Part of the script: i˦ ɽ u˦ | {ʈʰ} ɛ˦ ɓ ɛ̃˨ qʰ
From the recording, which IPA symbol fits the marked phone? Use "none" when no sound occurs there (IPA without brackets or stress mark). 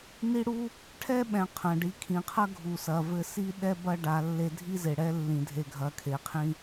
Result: ʈʰ